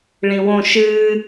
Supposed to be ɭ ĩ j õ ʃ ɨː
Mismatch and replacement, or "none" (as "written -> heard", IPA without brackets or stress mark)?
j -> w